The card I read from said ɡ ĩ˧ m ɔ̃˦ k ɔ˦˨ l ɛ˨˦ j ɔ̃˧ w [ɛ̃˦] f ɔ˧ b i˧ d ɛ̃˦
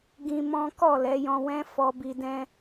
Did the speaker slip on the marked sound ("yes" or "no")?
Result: no